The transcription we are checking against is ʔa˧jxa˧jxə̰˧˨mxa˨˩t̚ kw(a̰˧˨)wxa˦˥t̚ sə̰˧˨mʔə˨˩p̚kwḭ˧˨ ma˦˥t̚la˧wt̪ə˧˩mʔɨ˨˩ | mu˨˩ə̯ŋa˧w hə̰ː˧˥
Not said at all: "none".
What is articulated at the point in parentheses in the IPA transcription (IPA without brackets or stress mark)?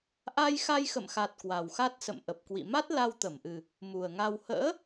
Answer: a˨˩